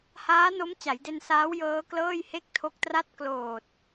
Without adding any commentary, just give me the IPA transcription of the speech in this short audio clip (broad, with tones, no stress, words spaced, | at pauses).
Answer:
haː˦˥no˦˥m t͡ɕa˩˦jde˧nsaː˦˥w jɤː˦˥klɤː˥˩j he˥˩k̚tʰo˦˥k̚tra˥˩t̚ kloː˨˩t̚